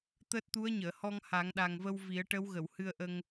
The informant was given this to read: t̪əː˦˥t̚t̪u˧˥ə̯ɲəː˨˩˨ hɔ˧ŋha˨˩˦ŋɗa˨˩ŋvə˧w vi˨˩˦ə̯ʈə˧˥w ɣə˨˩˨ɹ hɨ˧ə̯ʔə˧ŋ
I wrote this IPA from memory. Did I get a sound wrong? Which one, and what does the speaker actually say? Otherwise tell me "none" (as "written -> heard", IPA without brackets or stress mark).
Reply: ɹ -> w